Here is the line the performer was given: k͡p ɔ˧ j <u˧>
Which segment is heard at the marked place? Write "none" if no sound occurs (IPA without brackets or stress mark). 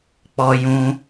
ũ˧